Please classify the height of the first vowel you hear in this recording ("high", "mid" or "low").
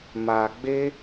low